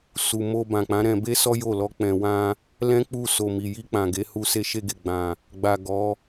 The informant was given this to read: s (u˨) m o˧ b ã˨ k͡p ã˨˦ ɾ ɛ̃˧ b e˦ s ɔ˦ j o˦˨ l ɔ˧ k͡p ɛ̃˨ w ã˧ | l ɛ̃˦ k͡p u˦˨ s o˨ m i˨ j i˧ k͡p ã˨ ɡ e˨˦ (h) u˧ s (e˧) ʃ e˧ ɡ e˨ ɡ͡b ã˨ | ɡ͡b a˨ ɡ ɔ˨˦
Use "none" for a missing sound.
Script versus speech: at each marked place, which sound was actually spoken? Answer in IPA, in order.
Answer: u˨, h, e˧

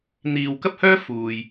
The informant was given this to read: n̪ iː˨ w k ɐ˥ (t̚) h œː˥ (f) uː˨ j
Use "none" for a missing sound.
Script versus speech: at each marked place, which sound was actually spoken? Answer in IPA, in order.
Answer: p̚, f

